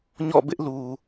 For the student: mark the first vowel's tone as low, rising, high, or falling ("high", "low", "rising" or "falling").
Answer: falling